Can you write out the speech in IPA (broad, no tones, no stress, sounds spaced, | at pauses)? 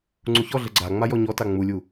ŋ͡ǀ u ç ɔ ɮ ə ɡ͡ǀ a ŋ͡m a j ɔ ɲ ɔ t a ŋ͡m u lʲ u